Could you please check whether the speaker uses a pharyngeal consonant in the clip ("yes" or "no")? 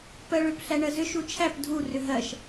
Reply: no